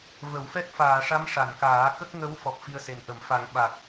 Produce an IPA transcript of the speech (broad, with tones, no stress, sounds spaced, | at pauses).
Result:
v ə˨˩˦ w f ɛ˦˥ k̚ f aː˨˩˨ ʂ a˧˥ m ʂ a˨˩˨ n k aː˨˩˦ k ə˦˥ k̚ ŋ ə˧˥ w f ɔ˨˩ p̚ f i˧ ə̯ s e˨˩ n ʔ ə˨˩˦ m f a˨˩˦ ŋ ɓ a˨˩ k̚